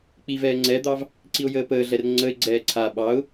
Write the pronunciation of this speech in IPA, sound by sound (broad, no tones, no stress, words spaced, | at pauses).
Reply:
k͡pivɛː ŋ͡ǀɛd̪ɑv | ǀiʊ̯jəːpəːɮɛr ŋ͡ǀəɪ̯ɡ͡ǀɛː ǀʰa ɓɑʊ̯